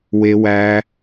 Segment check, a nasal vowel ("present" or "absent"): absent